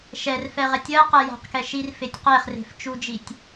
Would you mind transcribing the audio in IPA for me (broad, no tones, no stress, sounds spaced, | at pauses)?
ʃ ɛ r f ɛ ʁ ɛ tʲ ɜ q ɛ j a̤ q k ɛ ʃ i r f e tʲ q e χ r e̤ f t͡ʃ u d͡ʒ i tʲ